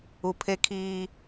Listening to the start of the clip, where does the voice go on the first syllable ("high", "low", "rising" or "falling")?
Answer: low